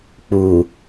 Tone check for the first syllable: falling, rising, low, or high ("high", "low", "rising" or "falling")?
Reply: low